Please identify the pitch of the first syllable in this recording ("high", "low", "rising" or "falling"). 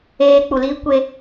high